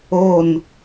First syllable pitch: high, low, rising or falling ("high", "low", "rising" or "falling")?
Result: falling